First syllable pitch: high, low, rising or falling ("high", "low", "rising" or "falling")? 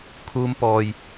high